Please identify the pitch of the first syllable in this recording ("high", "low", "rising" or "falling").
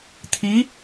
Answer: rising